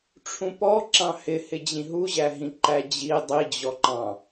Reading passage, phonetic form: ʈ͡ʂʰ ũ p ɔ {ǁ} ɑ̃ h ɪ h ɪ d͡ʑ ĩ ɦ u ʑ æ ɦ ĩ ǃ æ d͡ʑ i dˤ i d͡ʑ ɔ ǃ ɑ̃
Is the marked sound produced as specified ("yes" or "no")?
yes